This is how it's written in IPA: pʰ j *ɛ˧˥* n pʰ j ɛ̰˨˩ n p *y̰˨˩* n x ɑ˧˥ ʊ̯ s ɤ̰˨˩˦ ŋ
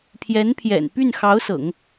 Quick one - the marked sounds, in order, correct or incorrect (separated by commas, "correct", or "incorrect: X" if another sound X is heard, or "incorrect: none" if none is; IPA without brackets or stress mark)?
correct, incorrect: y˥˩